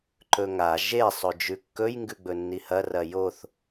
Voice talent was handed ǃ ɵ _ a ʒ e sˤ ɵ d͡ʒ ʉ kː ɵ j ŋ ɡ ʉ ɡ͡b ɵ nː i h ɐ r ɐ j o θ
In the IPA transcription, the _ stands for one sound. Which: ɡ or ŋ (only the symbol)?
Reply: ŋ